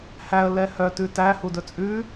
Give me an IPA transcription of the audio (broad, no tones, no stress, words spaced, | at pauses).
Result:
hæə̯ lɛhœ tʉtæ hudɵt͡sʼʉ